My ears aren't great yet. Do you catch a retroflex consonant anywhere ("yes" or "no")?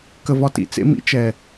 no